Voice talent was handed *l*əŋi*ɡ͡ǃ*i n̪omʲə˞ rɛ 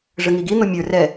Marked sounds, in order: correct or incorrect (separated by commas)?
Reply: incorrect, incorrect